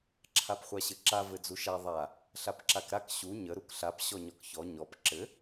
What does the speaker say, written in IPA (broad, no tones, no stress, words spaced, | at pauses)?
ǁʰapχʷaɕɘǁa vɘd͡zuʃa ðˤa | ɬapǁakɾak ɕu ɲə ɾukɬap ɕɔɲɔkçɔ ɲɔp ǁɘ